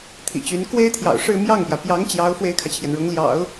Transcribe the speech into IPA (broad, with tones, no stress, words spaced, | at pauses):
t̪ʰḭ˨˩t͡ɕy˧˥n kwe˥ɪ̯t̪ʰjɑ̰˨˩ʊ̯ʂɻ̩˥˧ mjɑ˥˩ŋpjä˩ pjɑ˧˥ŋ t͡ɕjɑ˧˥ʊ̯ fwe˥ɪ̯kʰä˨t͡ɕʰjɛ˩nɻʊ˧˥ŋ ljɑ̰˨˩˦ʊ̯